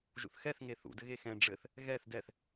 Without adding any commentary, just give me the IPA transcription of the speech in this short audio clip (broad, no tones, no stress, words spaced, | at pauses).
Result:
ʒṵθxɛθ ŋeθṵ dɘɣexɛ̃ ɖ͡ʐɘθ | ɣɛθ dɛθ